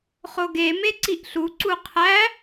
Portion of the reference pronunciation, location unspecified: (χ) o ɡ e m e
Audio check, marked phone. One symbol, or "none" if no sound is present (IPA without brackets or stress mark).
χ